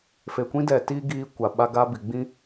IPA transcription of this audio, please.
f e˨ kʷ ĩ˦ d ɛ˨ t iː˦ ɡ iː˦ kʷ a˨ ɓ a˦ ɡ a˦ b i˨ ɡ͡b ĩ˦

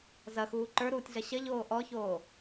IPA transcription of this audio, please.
z ɐ x uː ǃ ə˞ ɾ uː tʲ ɮ ɐ ɕ ɐ ʎ oː ʔ ɔ ç oː

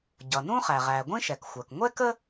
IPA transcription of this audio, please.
ɟ ʌ˩ n ũ˥ χ æ˩ ʁ æ˩ ɡʷ ĩ˥ ʃ ɛ˩ k xʷ ɜ˩ k ŋʷ ɛ˥ k ə˥

